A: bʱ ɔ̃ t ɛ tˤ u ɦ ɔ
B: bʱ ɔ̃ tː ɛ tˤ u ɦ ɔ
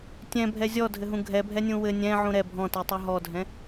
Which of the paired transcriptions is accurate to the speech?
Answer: A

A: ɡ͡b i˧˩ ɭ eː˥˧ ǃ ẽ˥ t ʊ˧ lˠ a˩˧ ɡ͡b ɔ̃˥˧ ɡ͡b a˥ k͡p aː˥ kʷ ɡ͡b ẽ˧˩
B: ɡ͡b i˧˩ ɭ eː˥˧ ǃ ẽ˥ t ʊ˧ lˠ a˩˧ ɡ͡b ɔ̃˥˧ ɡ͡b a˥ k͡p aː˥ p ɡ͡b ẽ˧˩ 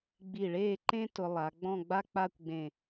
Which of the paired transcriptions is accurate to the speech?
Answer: A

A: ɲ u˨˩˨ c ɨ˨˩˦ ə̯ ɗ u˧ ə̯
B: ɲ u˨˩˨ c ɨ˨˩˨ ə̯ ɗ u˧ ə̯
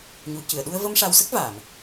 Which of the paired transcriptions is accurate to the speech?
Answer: B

